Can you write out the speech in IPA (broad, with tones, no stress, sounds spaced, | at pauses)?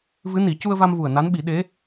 v ɨ˧˥ n i˨˩˦ c u˧ ə̯ v a˧ m v u˨˩ ə̯ n a˧˥ n ɓ i˨˩˦ ɗ e˧˥